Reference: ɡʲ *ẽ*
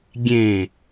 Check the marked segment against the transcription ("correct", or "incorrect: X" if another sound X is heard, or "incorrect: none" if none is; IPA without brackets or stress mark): correct